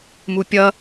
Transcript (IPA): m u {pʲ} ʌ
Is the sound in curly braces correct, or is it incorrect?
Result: correct